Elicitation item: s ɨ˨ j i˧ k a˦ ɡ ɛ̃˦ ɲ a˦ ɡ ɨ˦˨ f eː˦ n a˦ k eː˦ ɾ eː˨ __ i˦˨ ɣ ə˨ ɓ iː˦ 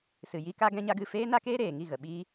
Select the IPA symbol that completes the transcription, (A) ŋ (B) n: A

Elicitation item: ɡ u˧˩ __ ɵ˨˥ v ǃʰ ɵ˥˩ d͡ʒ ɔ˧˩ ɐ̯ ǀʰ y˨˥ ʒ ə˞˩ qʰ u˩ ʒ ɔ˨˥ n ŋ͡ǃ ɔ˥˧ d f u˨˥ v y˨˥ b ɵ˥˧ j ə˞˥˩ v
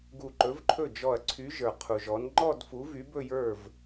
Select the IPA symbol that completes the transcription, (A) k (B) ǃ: B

